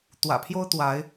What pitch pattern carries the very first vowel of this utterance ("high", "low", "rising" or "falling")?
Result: low